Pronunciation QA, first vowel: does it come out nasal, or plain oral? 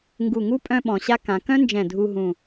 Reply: oral